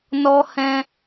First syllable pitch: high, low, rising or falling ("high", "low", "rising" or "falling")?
high